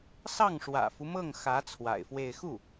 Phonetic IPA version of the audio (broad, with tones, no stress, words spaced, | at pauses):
sɑ˥˩ŋʂwä̰˨˩fu˦mɤ˥˩ŋ xä˧˥ t͡sʰwa̰˨˩ɪ̯fwe˥˧ɪ̯ xu˥˩